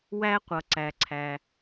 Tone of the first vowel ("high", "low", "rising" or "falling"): high